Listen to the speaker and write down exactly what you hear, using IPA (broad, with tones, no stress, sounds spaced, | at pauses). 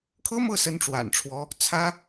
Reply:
kʰ ɤ˥ m ɤ˥˩ s ə˧˥ n ʈ͡ʂ w a̰˨˩ n ʈ͡ʂʰ w ɔ˧˥ | t͡sʰ ä˥